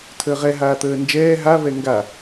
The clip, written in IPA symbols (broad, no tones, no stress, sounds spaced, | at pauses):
tʰ əː ʁ ɛ ɦ aː t̪ əː n d͡ʒ ɛː ɦ a v ɛ ŋ ɡ a